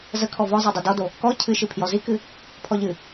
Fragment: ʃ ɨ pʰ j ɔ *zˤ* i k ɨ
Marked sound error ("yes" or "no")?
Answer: yes